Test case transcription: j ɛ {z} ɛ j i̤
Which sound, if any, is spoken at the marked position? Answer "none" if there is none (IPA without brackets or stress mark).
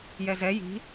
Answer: z